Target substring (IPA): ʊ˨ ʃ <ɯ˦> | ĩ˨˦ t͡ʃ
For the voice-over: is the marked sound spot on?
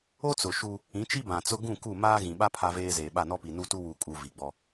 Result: no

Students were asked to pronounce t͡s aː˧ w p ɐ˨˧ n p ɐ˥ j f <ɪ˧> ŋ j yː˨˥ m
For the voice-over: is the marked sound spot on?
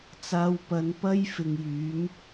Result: no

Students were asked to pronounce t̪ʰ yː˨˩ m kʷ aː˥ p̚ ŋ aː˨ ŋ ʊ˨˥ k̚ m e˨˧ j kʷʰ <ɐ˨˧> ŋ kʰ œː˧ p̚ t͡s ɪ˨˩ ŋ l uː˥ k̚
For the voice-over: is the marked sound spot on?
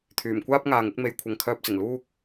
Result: no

